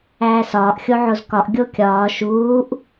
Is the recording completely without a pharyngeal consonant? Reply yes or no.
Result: no